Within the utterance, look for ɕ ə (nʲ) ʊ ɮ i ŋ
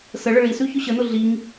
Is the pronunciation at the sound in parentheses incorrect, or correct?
incorrect: n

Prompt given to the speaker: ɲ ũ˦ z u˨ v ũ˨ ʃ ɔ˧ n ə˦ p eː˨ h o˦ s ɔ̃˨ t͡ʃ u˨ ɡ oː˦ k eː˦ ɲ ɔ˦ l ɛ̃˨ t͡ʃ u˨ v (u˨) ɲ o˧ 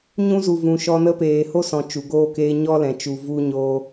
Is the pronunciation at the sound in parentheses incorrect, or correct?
incorrect: u˧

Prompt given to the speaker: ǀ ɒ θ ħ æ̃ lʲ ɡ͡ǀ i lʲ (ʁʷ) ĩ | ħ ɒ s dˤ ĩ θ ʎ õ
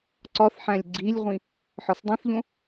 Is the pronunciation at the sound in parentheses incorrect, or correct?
correct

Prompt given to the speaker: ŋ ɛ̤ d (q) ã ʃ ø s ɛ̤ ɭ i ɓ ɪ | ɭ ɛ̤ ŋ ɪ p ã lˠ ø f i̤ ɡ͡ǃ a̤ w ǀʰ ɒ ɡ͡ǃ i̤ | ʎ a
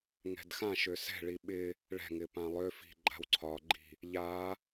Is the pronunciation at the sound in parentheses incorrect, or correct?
incorrect: x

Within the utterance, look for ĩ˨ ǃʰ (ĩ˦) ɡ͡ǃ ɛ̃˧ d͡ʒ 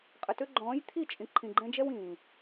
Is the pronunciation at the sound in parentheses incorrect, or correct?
incorrect: ĩ˨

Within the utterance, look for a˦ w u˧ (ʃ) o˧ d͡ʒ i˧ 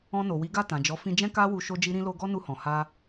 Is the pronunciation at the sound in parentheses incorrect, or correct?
correct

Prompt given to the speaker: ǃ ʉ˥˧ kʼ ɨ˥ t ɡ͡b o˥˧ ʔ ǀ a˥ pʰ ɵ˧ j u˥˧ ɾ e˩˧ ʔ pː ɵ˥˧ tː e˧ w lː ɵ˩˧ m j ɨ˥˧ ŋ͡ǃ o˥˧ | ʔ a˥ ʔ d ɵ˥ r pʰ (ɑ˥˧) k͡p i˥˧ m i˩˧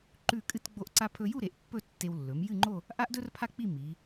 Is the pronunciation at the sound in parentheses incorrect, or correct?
incorrect: a˥˧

